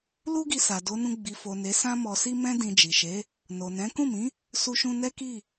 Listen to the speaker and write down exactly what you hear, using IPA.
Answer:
l u˦ ɡ i˧ s a˨ d o˨˦ n ũ˧ ɡ͡b i˨ f o˨ n e˨˦ s ã˦ m ɔ˧ s i˦ m ɛ̃˦ d ĩ˧ d͡ʒ i˨ ʃ e˨˦ | n o˨ n ɛ̃˨˦ k ũ˦˨ m ĩ˨˦ | s u˧ ʃ ũ˧ n ɛ˦ k i˦˨

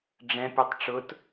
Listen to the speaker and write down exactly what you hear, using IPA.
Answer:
ɖ͡ʐ ɛ̃ pʲ u tˤ ʈ͡ʂ ʊ t

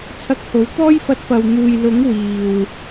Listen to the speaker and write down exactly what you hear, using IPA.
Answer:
t͡sʰ ɐ˧ k̚ h o˨˥ w t̪ ɔː˥ j f ɐ˧ t̚ p ɐ˨ w n̪ uː˨ j l ʊ˨˥ ŋ w iː˨ w

